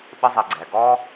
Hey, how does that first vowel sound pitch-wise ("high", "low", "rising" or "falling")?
high